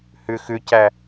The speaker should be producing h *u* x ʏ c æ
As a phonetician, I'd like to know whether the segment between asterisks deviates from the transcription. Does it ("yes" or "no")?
yes